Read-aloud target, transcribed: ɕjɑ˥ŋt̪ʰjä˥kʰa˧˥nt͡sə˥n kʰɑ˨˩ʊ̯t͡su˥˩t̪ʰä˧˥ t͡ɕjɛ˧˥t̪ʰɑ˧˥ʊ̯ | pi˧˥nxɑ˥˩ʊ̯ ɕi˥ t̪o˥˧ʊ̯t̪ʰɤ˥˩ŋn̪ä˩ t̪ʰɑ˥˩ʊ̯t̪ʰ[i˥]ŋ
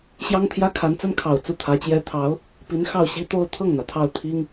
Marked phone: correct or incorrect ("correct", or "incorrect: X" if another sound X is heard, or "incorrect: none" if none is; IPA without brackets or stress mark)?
correct